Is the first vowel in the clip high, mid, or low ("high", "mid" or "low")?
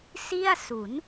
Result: high